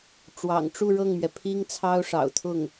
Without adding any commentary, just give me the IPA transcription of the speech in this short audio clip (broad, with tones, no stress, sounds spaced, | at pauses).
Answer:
ʈ͡ʂ w ɑ̰˨˩ ŋ ʈ͡ʂ u˥˧ ɻ ɤ˥˩ ŋ m ɥ ɛ˩ pʰ i˥ ŋ t͡sʰ ɑ˥ ʊ̯ ʂ ɑ̰˨˩ ʊ̯ t̪ʰ ʊ˥˩ ŋ